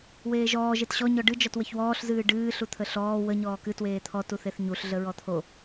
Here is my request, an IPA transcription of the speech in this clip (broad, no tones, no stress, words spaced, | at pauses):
weːʒɔː ʒetɕɔ ɲɔɖɨ d͡ʒɔtwəçwɔːɬ zɨːɖɨː ɬut̪ʰəɬɔː wə ɲɔːkɨ tweːt̪ʰɔ tuθeθɲuɬ ɮəɹɔt̪ʰo